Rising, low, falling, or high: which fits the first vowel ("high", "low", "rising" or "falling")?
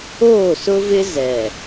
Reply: falling